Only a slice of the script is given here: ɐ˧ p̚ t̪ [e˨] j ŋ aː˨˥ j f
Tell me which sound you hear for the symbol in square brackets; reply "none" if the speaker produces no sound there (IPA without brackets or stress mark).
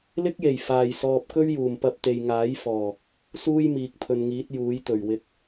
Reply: e˨